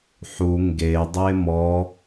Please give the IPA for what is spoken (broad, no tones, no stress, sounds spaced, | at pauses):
ħ u ŋ ɡ e dˤ e m ɔ